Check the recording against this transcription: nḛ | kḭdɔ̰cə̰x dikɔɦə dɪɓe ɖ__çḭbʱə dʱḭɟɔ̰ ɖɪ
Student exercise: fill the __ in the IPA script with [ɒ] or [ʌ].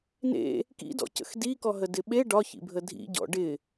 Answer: ɒ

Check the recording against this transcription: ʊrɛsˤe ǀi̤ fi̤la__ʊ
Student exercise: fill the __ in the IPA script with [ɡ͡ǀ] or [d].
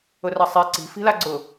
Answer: ɡ͡ǀ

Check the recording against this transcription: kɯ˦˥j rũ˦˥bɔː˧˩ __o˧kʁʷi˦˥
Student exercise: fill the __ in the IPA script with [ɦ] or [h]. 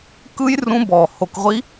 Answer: h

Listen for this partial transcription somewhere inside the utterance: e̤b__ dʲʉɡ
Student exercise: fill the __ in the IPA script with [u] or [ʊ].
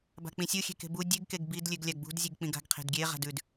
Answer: u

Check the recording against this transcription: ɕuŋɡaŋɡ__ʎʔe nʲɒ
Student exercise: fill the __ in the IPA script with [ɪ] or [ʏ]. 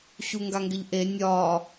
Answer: ɪ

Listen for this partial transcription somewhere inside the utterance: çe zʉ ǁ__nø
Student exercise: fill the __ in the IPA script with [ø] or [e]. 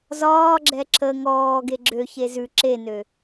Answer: e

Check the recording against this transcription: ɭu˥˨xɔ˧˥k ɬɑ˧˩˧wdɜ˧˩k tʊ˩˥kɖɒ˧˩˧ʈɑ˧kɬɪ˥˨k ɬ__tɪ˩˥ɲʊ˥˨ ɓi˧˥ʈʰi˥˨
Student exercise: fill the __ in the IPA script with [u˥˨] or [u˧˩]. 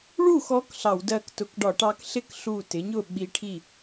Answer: u˧˩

